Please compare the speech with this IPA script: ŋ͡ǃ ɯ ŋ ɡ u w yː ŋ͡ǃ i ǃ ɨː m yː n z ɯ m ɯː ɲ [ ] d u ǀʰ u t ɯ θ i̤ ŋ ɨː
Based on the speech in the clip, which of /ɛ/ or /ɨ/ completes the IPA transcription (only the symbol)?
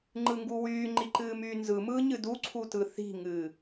ɨ